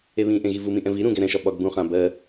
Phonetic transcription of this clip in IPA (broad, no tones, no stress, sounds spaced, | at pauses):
e β ĩ ʔ ẽ ɣ i v u m ĩ ʔ ɛ̃ v i ɾ ũ ɡ ɛ ɾ ɛ̃ ʃ ɒ ɓ ɒ ɡ b ũ χ ã b ɜ